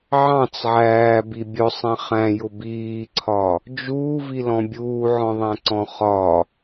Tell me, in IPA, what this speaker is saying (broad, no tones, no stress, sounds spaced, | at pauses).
ʕ ɑ̃ t͡s ʕ æː b i bʲ ʊ sˤ ɛ̃ χ æ̃ j ʊ b iː ǀʰ ɒ | d͡ʒ uː v i l ɔ̃ bʲ uː ʕ ɔ̃ ðˤ æ̃ ǀ ɔ̃ χ ɒ